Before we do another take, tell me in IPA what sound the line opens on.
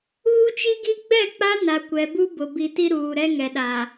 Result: uː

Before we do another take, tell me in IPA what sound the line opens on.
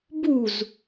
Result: b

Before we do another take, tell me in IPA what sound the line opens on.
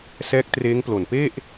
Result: s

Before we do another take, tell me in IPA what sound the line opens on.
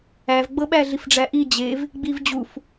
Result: æ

